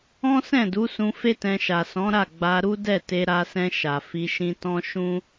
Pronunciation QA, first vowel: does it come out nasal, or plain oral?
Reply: nasal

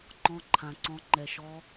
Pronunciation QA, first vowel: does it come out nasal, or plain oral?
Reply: nasal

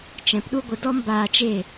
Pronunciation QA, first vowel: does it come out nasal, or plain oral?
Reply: nasal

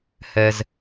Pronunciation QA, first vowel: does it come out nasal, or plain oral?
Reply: oral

